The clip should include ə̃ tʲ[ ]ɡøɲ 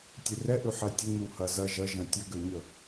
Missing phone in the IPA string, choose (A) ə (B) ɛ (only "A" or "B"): A